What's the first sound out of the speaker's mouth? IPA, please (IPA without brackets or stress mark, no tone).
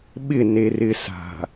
ɓ